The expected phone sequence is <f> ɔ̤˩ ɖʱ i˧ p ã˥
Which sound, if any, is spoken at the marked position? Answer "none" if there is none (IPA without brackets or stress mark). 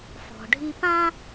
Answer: f